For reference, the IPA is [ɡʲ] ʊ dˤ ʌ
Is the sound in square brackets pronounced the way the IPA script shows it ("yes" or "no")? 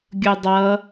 yes